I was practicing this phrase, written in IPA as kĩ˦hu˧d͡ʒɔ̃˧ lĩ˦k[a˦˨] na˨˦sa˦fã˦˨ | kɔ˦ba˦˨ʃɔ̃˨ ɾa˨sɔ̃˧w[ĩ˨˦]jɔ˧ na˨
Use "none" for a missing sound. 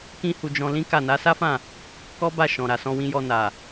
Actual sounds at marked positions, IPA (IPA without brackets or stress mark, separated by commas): a˦˨, ĩ˧